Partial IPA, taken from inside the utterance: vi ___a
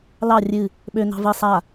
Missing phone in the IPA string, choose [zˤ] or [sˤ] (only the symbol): sˤ